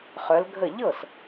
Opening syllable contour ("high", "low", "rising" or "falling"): rising